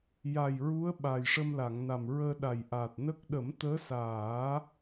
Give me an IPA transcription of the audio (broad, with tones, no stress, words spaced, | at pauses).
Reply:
ja˨˩jɹu˧˥ə̯ ɓa˨˩jʂə˧mla˨˩˨ŋ na˨˩mɹəː˧ɗa˨˩jʔaː˨˩t̚ nə˦˥k̚ ɗə˨˩˦mt̪əː˧˥saː˨˩˦